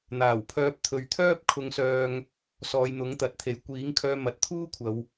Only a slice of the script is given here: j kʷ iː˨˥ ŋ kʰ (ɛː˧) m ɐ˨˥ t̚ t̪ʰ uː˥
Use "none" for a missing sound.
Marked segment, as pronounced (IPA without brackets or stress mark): œː˧